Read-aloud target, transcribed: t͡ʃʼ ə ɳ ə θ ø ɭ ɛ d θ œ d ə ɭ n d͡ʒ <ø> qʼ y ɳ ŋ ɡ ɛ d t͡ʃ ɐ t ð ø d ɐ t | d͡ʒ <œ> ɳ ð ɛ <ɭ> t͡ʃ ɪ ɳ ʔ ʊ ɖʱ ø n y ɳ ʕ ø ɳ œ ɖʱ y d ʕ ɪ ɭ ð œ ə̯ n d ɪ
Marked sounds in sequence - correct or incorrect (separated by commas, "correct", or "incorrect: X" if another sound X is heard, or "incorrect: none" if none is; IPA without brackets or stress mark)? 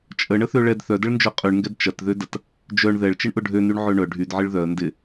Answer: incorrect: œ, correct, correct